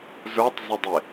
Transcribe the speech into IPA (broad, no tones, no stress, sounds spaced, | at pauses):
z ə˞ tˤ z ɪ dˤ ɪ